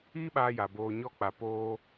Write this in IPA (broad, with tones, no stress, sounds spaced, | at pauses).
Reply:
iː˦ ɓ aː˧ j a˨ b oː˧ ɲ ɔ˦ k͡p a˧ p oː˦